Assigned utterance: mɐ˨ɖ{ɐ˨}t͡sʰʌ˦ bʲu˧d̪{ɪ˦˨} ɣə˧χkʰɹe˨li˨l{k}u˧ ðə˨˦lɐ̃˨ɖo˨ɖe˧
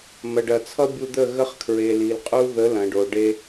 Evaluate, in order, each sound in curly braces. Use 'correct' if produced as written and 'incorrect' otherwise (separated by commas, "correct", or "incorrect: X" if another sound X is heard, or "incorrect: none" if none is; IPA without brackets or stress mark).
correct, incorrect: ə˦˨, incorrect: qʼ